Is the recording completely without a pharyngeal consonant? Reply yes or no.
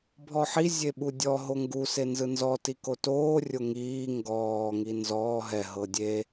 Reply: no